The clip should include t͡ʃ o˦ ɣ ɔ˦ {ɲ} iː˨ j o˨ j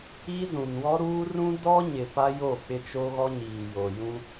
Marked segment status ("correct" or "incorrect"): correct